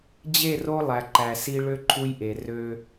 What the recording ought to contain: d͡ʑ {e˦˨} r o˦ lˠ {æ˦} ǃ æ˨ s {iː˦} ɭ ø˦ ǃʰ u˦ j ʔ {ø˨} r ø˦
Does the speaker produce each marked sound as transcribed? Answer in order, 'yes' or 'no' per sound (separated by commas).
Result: yes, no, no, no